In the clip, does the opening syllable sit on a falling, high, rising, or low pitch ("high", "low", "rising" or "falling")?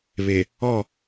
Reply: low